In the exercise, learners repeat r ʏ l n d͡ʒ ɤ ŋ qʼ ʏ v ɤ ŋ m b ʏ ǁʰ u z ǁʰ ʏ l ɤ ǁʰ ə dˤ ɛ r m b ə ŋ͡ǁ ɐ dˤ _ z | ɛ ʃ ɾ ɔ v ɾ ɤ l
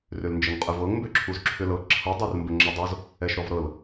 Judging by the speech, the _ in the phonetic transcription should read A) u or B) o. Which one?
B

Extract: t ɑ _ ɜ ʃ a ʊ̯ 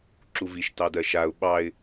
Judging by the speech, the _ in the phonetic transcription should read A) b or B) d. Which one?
B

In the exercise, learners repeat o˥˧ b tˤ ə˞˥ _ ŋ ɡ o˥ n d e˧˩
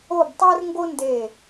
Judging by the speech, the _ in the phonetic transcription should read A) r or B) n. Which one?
A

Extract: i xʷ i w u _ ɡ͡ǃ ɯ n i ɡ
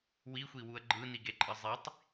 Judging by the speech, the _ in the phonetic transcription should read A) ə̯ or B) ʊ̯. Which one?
A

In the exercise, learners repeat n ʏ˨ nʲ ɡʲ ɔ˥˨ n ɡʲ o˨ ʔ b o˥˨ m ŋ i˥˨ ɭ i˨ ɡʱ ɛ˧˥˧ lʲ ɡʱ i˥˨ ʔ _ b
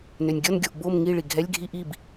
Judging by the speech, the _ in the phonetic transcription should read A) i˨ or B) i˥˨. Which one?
B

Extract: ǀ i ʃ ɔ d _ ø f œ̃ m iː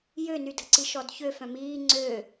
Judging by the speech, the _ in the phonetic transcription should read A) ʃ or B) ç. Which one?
B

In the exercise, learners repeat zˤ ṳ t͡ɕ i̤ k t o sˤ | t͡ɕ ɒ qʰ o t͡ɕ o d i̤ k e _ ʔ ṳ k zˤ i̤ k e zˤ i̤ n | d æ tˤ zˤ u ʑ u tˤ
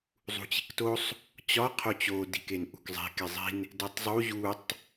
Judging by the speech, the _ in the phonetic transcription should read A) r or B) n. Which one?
B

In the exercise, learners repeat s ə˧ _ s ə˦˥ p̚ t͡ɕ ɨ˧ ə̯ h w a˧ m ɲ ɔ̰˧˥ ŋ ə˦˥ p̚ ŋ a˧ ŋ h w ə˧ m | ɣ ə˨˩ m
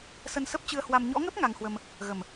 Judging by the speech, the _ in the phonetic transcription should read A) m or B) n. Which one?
B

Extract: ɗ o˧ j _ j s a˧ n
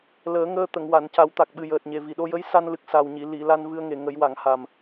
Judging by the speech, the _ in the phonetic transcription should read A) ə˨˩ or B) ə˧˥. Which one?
B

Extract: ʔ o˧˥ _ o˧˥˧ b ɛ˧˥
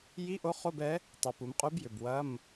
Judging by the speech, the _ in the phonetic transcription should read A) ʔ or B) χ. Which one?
B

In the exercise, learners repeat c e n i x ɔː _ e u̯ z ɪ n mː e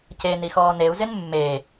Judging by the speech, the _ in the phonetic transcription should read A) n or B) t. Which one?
A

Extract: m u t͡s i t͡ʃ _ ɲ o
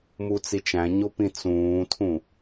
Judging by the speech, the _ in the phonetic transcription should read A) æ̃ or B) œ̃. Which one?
A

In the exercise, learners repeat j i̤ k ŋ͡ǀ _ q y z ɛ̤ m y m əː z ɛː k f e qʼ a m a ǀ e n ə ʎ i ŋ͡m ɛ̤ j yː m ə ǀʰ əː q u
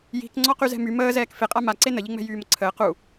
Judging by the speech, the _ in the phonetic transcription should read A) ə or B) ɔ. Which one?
B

